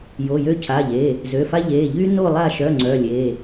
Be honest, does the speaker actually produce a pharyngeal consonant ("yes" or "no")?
no